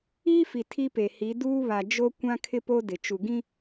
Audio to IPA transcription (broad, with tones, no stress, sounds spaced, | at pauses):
iː˦ f i˨ tʰ i˦ p e˨ h i˨˦ d uː˦ β a˨ d͡ʒ o˦ kʷ ã˦ kʰ ɪ˦ p o˦ d ɪ˨ t͡ʃ u˨ ɡ ĩ˦